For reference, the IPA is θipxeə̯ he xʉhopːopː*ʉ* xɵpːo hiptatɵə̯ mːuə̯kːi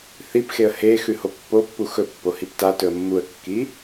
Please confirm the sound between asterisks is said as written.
no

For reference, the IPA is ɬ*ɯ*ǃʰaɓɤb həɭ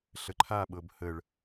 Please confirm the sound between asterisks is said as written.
no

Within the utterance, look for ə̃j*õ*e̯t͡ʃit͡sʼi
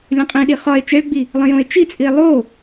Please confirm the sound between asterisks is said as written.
yes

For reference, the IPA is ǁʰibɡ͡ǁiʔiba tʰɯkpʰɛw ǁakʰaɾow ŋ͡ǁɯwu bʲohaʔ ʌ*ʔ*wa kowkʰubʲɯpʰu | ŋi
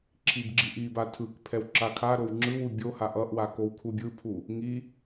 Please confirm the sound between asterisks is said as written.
yes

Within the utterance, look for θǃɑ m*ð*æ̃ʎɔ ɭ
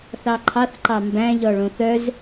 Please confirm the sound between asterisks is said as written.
no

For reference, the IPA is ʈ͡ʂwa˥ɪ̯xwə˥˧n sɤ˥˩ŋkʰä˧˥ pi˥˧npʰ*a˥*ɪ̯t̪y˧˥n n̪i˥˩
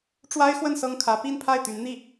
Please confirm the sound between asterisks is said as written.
no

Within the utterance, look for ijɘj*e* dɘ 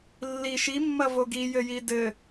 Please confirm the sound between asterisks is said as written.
no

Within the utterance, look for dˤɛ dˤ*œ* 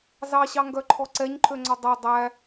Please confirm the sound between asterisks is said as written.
no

